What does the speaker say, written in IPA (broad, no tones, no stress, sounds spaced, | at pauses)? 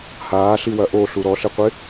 h aː ɬ i w ɐ ʔ o ɬ u ɾ ɔ ɬ ɪ qʷ ɪ